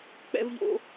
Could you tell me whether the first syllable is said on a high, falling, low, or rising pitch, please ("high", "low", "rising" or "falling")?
high